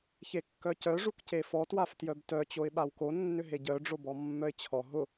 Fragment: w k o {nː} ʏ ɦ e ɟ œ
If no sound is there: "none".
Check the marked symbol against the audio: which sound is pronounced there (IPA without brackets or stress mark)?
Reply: nː